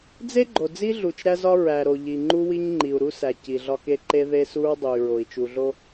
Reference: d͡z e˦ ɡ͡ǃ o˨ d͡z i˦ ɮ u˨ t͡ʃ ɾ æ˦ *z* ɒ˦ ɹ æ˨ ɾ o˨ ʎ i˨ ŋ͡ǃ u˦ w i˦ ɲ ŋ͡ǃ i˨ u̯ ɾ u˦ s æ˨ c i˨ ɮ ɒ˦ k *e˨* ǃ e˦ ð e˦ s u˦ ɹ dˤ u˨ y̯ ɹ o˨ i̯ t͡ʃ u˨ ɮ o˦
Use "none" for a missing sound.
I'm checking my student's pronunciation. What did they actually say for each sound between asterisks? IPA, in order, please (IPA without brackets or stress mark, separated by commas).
z, e˦